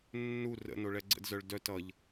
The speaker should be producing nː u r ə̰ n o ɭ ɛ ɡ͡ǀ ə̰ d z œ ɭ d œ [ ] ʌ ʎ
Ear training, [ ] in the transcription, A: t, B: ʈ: A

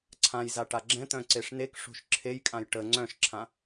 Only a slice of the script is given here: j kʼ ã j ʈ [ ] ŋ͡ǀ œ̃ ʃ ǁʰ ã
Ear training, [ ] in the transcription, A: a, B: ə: B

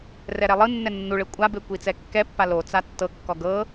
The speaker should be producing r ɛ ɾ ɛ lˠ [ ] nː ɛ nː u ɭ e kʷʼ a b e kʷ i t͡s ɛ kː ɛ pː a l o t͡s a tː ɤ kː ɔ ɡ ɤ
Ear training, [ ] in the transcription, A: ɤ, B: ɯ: B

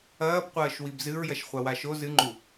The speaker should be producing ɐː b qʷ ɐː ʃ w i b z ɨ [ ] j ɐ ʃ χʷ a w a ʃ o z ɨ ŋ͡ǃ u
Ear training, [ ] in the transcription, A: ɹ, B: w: A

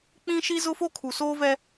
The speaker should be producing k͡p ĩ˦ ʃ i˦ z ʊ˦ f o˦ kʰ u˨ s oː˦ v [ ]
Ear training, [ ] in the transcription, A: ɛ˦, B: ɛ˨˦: A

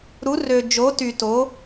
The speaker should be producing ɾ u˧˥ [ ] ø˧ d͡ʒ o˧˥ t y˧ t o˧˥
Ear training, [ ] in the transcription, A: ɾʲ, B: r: B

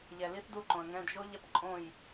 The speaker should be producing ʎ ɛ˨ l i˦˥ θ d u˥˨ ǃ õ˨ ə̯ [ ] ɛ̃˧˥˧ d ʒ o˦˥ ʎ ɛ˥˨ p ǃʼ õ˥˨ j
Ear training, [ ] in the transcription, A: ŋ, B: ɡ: A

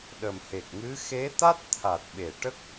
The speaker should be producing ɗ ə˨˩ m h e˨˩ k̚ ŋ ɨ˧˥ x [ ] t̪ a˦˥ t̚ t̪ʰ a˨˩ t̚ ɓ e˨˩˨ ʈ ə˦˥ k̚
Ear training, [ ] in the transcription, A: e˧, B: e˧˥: B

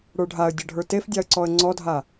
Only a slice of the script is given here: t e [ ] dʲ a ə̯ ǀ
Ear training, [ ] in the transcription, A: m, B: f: B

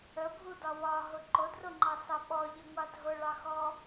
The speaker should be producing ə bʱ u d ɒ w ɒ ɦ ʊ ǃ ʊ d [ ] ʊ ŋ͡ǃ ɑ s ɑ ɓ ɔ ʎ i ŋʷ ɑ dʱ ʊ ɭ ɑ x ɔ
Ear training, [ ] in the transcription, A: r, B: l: A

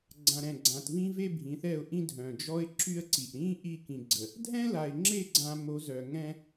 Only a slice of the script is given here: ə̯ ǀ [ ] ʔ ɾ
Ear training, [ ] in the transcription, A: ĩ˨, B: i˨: B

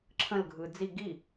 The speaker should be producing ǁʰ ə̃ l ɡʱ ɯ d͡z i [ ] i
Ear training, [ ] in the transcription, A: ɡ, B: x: A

